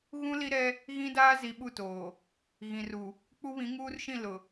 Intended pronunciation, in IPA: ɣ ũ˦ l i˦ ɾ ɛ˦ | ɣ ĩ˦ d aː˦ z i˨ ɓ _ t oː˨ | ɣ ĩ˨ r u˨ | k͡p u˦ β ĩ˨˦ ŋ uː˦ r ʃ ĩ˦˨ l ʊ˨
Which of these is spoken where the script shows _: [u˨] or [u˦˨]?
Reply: u˦˨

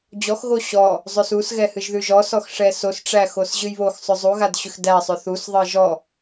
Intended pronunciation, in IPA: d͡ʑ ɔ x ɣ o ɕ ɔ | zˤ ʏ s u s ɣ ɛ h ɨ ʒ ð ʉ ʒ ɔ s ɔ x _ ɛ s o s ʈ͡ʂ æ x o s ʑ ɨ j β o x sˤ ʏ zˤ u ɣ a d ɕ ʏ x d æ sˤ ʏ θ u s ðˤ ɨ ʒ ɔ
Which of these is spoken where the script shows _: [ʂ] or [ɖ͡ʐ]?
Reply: ʂ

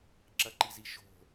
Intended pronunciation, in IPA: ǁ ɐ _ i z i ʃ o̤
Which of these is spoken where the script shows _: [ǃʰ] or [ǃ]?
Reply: ǃ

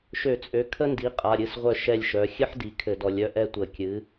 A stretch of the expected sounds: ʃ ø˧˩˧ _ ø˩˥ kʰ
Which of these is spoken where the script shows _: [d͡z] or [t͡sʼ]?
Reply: t͡sʼ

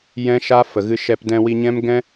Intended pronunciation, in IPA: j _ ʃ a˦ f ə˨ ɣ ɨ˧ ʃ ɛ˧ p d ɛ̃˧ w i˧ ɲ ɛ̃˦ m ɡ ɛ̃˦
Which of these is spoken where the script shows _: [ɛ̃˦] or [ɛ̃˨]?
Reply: ɛ̃˦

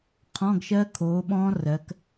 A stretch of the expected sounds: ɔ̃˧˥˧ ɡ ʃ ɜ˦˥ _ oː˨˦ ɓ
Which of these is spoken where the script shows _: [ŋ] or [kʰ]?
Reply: kʰ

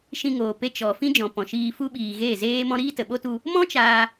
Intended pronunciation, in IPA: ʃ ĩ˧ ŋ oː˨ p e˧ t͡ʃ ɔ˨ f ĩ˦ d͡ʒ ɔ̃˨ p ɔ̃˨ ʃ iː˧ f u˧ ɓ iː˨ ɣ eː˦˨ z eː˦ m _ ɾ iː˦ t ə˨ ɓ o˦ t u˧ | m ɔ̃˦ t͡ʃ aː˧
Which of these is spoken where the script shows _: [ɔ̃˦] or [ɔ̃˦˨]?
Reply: ɔ̃˦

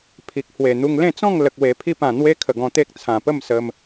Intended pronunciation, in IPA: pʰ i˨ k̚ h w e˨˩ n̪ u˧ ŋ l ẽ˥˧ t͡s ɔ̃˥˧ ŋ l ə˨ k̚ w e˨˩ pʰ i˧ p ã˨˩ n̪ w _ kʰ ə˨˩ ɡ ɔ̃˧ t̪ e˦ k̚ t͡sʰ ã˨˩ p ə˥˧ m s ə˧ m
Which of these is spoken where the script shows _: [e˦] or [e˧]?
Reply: e˦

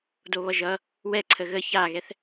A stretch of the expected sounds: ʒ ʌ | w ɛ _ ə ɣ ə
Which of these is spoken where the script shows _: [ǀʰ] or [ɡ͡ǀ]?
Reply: ǀʰ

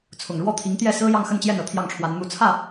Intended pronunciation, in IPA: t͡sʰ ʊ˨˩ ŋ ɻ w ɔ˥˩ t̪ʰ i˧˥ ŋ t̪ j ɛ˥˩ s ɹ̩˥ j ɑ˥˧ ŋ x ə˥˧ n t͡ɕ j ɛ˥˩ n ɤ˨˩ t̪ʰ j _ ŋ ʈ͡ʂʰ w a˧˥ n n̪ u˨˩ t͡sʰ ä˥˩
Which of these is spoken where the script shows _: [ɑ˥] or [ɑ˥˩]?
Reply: ɑ˥˩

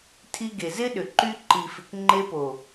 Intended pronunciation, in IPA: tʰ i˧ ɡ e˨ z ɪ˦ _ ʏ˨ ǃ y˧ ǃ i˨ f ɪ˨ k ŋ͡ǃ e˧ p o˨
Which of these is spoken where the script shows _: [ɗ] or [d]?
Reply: ɗ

